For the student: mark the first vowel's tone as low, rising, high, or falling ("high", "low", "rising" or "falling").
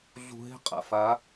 low